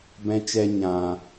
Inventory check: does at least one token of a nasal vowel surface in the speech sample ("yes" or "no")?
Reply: yes